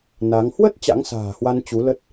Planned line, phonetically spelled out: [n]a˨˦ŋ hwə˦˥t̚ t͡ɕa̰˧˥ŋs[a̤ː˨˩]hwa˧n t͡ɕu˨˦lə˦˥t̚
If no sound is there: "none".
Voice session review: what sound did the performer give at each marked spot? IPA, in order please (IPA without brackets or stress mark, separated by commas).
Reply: n, a̤ː˨˩